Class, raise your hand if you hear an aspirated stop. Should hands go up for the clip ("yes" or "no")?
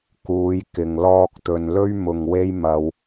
no